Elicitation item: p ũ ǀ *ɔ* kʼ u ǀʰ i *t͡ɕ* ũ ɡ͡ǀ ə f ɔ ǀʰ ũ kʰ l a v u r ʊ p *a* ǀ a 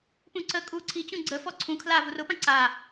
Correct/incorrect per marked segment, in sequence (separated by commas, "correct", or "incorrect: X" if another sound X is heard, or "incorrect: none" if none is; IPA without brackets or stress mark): incorrect: ə, correct, incorrect: ã